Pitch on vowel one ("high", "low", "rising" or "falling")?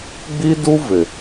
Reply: high